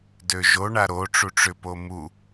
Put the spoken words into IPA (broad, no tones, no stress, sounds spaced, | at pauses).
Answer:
d ø ʒ o ɳ a ɾ o ʈ͡ʂ u ʈ͡ʂ ʏ p o m u